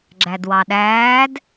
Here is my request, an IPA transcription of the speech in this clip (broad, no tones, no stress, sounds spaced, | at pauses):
ɡ͡ǁ æ d w ɑ ɗ æː d